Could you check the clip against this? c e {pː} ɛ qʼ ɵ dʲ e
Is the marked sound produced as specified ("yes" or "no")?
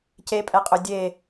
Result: no